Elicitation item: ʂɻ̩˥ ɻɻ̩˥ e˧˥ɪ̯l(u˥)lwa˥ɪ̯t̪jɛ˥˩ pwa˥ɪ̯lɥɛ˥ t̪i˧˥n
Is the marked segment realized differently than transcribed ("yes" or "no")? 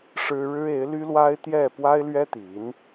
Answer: yes